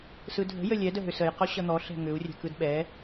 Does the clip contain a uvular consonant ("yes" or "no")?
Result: yes